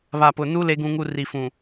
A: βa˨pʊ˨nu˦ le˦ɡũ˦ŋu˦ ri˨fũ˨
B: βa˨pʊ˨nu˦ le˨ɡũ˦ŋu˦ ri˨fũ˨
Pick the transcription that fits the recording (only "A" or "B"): A